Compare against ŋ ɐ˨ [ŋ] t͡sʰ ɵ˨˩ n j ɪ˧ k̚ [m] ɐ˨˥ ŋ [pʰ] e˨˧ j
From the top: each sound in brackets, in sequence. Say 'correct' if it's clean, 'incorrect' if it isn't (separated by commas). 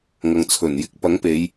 correct, incorrect, incorrect